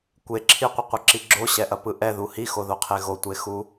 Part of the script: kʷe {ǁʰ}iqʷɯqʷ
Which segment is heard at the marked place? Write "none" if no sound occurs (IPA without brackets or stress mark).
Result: ǁʰ